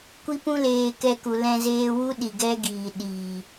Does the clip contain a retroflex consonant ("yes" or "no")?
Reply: no